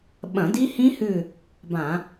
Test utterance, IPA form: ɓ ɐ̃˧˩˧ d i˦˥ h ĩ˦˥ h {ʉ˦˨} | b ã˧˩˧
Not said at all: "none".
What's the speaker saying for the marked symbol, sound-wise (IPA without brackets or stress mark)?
ʉ˦˨